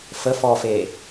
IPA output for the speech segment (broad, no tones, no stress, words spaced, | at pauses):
fə fɔfe